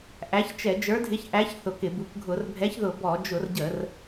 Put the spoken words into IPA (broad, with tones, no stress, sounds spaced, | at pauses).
ʔ æ˨˥ ç t͡ʃ ɛ˧˩˧ d͡ʒ ə˞˨˥ dʱ ɪ˨˥ ç ʔ æ˨˥ ç θ ʊ˧˩˧ k ɪ˧˩˧ b u˨˥ k ɡʱ ʊ˧˩˧ r bʱ ɛ˨˥ ç ð ʊ˧˩˧ b ɔ˧˩˧ d͡ʒ ʊ˧˩˧ r ɟ ə˧˩˧ r